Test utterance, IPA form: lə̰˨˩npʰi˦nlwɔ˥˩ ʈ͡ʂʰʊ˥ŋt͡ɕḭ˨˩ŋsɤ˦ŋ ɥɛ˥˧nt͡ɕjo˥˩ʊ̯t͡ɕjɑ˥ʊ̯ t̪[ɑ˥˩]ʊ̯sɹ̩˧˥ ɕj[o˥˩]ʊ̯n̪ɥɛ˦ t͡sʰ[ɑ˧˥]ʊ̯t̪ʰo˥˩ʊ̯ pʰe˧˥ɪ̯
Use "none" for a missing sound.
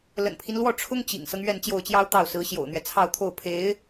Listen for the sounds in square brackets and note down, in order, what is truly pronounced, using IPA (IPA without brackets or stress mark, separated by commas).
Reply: ɑ˥˩, o̰˨˩, ɑ˥˧